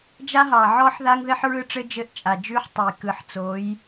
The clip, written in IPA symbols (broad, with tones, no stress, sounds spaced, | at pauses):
d͡ʒ a˦ ɦ ɑ˨ ʕ ɔ˦ ħ ð a˦ ŋ ð ɘ˦ ħ ɹ ɯ˦ ʈ͡ʂ ɘ˦ d͡ʒ ɘ˦˨ ʔ t͡ʃʼ a˨ d͡ʒ ʉ˦ ħ tˤ ə˨ j k ɯ˨ ħ t͡s o˨˦ j